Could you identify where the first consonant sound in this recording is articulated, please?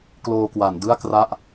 velar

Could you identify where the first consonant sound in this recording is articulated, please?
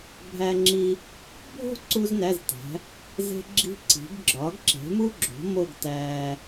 labial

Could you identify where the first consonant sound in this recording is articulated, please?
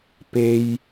labial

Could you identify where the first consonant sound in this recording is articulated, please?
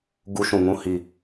velar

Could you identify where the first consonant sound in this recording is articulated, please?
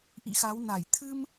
glottal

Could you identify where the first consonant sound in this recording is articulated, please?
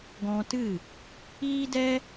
velar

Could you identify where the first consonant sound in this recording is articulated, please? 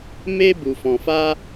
labial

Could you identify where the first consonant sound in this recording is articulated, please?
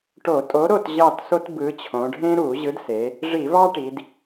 retroflex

